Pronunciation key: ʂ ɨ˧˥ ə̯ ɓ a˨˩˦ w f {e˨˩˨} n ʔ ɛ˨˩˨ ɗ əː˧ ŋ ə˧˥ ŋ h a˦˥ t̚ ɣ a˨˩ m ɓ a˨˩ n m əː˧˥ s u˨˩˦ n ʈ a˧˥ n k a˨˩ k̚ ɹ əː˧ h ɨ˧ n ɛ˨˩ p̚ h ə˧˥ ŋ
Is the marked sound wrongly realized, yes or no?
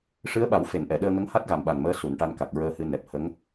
no